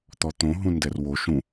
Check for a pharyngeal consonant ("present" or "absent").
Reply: absent